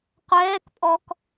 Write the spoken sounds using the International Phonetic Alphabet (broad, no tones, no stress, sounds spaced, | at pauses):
qʷ ɛː k pʼ ɔ k